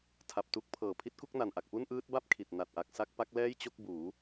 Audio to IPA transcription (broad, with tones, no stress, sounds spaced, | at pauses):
tʰ a˨˩ p̚ t u˦˥ k̚ pʰ ɤː˨˩ pʰ i˦˥ t̚ k u˥˩ k̚ n a˨˩ n ʔ a˨˩ k̚ p u˥˩ n ʔ ɯː˦˥ t̚ b a˥˩ p̚ kʰ i˨˩ t̚ n a˨˩ t̚ ʔ a˨˩ k̚ s a˥˩ k̚ p a˦˥ k̚ l ɛː˥˩ j t͡ɕ o˥˩ k̚ b uː˩˦